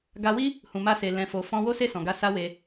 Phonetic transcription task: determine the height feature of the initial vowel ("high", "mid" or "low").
low